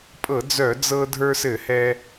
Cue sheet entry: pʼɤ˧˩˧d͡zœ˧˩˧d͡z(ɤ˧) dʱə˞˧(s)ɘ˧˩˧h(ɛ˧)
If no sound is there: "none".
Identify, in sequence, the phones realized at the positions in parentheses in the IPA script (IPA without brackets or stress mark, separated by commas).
ɤ˧, s, ɛ˧